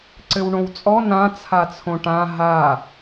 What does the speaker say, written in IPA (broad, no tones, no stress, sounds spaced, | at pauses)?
ǀ ɘ w ɳ õ w t͡sʼ ɔ n ã t͡sʰ a t͡sʰ õ ʈ ã ɦ a